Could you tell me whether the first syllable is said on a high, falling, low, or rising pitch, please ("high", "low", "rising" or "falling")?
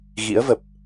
rising